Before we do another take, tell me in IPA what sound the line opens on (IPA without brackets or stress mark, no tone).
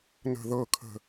n